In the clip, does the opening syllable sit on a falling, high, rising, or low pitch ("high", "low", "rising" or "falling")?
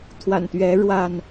low